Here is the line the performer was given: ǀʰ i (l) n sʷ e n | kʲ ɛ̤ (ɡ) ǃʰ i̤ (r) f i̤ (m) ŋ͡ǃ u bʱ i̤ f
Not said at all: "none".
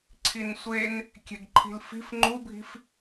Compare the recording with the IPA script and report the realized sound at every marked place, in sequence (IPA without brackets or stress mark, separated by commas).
none, ɡ, l, f